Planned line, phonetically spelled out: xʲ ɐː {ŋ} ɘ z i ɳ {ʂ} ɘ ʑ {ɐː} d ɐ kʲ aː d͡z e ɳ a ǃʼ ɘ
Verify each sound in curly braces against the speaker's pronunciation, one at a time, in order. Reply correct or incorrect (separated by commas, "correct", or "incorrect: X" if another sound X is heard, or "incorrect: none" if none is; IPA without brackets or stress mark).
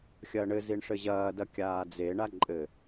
incorrect: ɳ, correct, correct